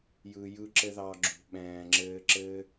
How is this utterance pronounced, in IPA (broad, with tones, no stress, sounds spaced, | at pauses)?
j ɯ˨ j ɯ˧ ǁ ɘ˧ ð ɑ˧ ɡ͡ǁ ṳ˨ ɓ ɛ̃ː˨ ŋ͡ǁ ɘː˧ ǁ ɘ˦